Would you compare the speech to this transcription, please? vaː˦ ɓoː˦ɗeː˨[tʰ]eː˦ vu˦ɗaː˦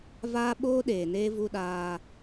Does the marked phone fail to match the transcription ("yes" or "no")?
yes